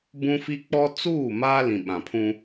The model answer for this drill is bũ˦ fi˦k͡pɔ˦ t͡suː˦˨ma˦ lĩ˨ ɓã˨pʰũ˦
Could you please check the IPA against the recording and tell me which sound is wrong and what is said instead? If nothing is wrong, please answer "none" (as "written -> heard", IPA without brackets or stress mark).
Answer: none